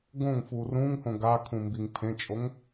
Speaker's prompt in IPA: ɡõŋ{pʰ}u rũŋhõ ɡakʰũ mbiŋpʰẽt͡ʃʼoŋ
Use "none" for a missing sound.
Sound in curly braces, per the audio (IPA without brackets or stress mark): f